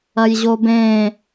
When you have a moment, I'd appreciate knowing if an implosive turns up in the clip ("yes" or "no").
no